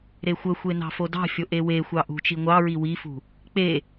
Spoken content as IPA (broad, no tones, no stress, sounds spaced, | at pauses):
ɾ e xʷ ə xʷ e n ɑ̤ f o d ɑ̤ fʲ o ʔ e w e xʷ ɑ ʔ ṳ t͡ʃ i ŋʷ ɑ ɹ i w i f ṳ | k͡p e